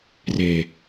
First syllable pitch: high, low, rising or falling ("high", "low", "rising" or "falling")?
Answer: low